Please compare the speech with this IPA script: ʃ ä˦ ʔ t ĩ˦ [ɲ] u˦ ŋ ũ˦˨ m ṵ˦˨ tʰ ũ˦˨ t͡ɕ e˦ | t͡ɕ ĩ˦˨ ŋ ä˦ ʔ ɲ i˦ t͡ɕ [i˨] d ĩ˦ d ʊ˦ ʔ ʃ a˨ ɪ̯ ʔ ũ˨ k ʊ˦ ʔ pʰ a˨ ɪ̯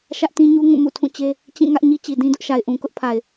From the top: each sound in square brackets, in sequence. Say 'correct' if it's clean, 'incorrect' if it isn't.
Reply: correct, correct

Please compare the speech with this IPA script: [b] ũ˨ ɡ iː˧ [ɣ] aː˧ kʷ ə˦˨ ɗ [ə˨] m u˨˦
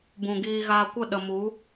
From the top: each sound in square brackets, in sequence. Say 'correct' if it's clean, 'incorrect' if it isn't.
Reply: correct, correct, correct

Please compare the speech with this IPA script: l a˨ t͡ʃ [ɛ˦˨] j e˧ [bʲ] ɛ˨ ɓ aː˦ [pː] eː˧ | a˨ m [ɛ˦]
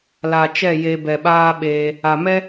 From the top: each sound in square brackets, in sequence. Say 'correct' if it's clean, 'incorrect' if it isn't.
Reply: correct, incorrect: b, incorrect: ɓ, correct

